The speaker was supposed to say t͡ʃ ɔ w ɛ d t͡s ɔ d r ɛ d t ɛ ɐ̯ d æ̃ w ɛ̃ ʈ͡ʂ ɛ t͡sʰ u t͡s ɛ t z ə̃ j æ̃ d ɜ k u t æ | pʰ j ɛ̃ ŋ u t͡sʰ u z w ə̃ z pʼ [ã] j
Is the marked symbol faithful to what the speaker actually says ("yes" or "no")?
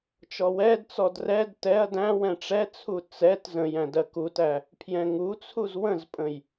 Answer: no